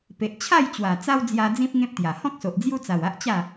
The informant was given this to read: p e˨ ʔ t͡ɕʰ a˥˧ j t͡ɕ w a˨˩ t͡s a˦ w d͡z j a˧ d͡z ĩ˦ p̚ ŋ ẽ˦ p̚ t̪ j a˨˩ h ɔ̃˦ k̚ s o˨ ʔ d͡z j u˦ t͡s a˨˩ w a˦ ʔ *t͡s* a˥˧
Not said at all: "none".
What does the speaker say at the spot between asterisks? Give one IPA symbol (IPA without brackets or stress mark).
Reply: t͡ɕ